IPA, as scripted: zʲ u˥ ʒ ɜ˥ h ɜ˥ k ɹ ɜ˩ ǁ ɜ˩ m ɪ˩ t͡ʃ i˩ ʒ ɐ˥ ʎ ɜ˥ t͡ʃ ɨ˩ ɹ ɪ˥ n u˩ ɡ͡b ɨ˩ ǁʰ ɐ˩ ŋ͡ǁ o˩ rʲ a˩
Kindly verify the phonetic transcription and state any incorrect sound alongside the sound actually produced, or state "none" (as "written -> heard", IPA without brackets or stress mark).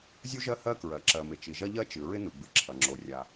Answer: none